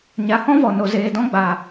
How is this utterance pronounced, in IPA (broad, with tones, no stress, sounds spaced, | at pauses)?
ɲ a˨ h ɔ̃˦ v ɔ˨ n o˨ z eː˨ d ɔ̃˧ ɡ͡b a˨